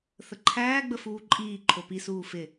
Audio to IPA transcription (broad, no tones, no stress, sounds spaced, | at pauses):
θ ə ǃʰ æː ɡ͡b ə f uː ǃʼ iː ǃʰ o p i s uː f ɪ